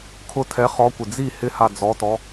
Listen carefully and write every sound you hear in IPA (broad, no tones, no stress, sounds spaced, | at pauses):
kʰ ʊ tʰ ɛ χ ɔ kʷ ɪ d͡z i h ɪ h a d͡z ɔ t ɔ